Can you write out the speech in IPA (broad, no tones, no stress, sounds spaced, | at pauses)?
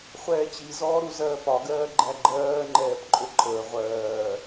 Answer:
χʷ ɛː t͡ɕ i z ɔː ɾ u z ɜː p ɒ ɡ ɜː ɡ͡ǃ æ ɡ͡ǃ ɜː ŋ͡ǃ ɛː p ǃʼ ʊ ǃʼ əː ʁʷ ɜː